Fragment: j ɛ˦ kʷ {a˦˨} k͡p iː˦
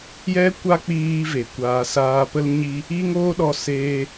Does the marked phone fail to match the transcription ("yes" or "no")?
yes